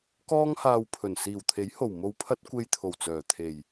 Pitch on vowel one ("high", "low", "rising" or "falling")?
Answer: high